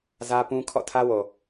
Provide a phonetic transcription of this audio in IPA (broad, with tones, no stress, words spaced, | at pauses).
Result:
zä˦pũ˦ kʰɔ̰˦˨tʰä˦wo˨